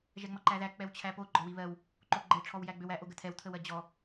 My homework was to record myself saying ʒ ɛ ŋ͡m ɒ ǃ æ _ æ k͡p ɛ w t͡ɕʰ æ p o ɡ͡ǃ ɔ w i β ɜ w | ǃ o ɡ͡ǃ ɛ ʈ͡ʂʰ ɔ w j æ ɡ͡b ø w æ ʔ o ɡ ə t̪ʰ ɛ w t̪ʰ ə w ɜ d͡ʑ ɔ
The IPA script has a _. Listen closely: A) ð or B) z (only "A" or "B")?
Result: A